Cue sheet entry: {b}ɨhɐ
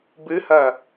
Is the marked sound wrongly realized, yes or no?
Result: no